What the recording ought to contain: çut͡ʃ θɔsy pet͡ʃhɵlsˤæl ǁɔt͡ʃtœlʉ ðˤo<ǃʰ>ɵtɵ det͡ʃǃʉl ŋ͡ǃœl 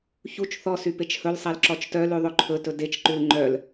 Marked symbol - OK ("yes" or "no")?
yes